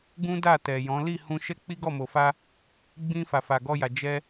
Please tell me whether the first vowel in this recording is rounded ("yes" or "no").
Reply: yes